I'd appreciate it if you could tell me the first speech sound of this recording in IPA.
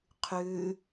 qʰ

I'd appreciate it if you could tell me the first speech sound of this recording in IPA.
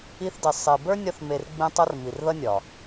i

